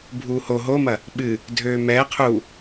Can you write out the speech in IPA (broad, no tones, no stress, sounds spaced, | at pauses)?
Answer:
bʱ uː h o ɦ o m ɐ | ɓ ɨ | dʱ øː m ɛː qʰ u